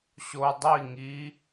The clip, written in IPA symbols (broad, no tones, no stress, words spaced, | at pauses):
ɕo dˤi ŋi